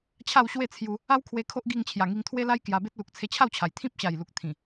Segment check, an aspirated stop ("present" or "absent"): present